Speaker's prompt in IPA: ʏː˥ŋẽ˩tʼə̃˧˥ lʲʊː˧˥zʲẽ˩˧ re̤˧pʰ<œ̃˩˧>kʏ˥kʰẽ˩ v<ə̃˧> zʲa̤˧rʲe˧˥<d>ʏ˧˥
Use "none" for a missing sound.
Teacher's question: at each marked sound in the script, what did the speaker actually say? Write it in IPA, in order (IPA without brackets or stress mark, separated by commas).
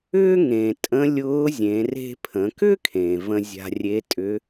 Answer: ə̃˩˧, ə̃˧, tʼ